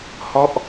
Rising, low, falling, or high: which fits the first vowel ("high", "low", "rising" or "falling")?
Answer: falling